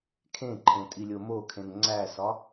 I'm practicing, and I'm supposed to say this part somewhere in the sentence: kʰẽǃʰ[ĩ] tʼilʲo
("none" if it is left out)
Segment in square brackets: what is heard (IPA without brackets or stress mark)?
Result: ẽ